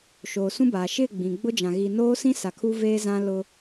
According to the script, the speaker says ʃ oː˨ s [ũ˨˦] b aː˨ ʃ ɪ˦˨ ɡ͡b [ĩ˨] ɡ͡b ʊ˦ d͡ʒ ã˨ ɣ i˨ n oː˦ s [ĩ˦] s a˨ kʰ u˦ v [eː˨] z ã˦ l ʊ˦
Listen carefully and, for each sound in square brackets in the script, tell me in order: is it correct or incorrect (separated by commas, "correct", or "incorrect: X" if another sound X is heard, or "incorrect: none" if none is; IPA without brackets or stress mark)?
incorrect: ũ˦, correct, correct, incorrect: eː˦